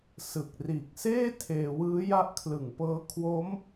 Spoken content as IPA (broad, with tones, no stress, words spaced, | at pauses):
sɯ˨˩k̚ riː˨˩k̚seː˥˩ tʰeː˧wɯː˦˥ ja˦˥ʔkʰlɯ˨˩ŋpɤː˦˥ kʰwo˦˥m